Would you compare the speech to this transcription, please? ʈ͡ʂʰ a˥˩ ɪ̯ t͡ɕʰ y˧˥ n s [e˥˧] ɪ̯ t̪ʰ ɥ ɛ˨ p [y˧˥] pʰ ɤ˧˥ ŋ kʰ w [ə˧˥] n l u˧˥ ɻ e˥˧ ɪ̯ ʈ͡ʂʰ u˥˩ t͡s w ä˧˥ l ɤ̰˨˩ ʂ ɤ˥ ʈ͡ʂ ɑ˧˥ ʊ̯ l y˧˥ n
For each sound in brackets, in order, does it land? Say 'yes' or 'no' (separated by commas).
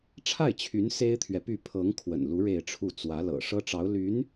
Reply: no, no, no